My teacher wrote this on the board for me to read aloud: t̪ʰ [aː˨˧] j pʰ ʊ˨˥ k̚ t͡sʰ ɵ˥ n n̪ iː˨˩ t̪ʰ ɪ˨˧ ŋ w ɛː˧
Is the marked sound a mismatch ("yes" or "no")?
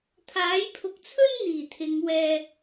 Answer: yes